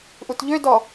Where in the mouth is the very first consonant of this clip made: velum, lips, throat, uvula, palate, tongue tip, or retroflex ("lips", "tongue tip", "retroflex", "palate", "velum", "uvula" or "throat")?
throat